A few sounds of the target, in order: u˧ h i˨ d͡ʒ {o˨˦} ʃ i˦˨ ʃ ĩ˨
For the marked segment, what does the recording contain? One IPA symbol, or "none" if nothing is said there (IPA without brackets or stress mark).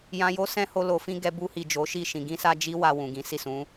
o˨˦